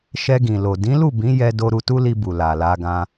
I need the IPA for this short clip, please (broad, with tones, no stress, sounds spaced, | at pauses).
ʃ ɛ˧ ɡ ĩ˨ l o˨ d ĩ˨˦ l u˦˨ b ĩ˨˦ j ɛ˧ d o˧ ɾ u˧ t u˦ l i˧ b u˨ l a˨ l a˧ ɡ ã˧